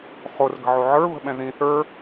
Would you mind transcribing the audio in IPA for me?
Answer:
χorɡə̤ʕo ʕə˞βə̤ɓɛ̃ ðĩ θə˞

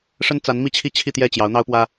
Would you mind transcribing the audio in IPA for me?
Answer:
ʂə˥nt͡sa˧˥nmi˥˧t͡ɕʰi˥˧ t͡ɕʰi˥˧t̪jɛ˥˩t͡ɕjɑ˧˥ʊ̯ n̪ɑ˥ʊ̯pwä˥

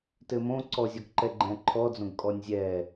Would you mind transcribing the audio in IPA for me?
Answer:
tɘmõ ǀɔzʲɔɡǃɛ ɡ͡ǃɛ̃ǃʰɔd͡zõɡ kʼɔnʲzʲɛ

